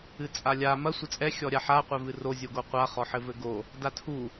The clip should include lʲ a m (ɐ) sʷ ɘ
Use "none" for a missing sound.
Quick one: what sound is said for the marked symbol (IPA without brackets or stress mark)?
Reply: ɐ